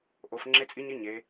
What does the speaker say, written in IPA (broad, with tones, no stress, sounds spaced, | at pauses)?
ʔ o˩˧ f ŋ͡ǁ e˧˥ t͡sʼ i˧˥ ɲ i˧˥ ɲ e˩˧